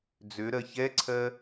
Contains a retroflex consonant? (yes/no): no